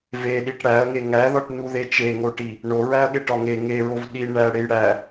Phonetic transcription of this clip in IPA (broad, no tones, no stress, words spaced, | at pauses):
veɗiʈ ɽæɐ̯ŋe ŋæðɒʈnuðe t͡ʃeŋoʈi | ɳoɹæɐ̯ɠeʈɒ ŋe ŋeɹov ɗi ɳæɽej ɽæ